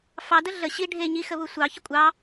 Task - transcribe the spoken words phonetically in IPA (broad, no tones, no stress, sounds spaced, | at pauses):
f ɑ d ə ɮ ə ɕ i ɖʱ e ɲ i x ə β u sʷ ɑ ç ə kʷʼ ɑ